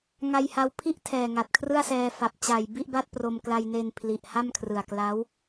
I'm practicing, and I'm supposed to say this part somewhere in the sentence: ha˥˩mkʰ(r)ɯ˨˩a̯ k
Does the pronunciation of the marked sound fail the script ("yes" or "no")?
no